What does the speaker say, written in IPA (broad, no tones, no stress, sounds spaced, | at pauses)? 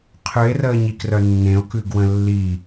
qʰ ʉ e̯ r əː ɲ i k r œ nː ẽ o̯ k ʉ ɡ w ə̃ lː i